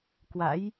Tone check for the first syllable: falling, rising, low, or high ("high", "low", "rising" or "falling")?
rising